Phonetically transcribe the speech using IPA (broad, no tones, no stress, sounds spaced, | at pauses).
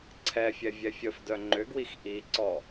ǀʰ ɛ fʲ ɛ vʲ ɛ fʲ ə f d œ ŋ͡ǃ ʏ ɡ w i x ʔ i ǀ ɔ